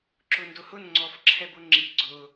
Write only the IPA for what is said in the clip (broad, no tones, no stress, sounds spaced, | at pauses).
ǁ ʊ n d ʊ h ʊ n ŋ͡ǀ ɔ f ǁʰ ɛ b ʊ ŋ͡ǁ i ɡ͡ǀ ʊ